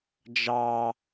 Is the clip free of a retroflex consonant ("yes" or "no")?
yes